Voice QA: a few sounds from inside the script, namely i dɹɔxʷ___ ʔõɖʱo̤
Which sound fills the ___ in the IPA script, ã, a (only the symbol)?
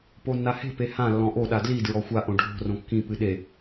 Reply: a